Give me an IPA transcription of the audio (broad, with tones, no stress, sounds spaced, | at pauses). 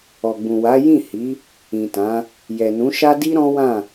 ɔ˨ ɡ͡b ũ˨ w a˨˦ j ĩ˦˨ h i˨˦ | ĩ˨ t ã˨˦ | j ɛ˨ n ũ˨˦ ʃ a˦ d i˦ ɾ ɔ̃˦ w ã˦˨